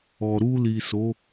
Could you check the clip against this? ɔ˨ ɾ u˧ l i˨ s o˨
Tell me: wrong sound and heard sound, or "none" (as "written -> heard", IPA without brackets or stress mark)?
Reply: o˨ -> o˨˦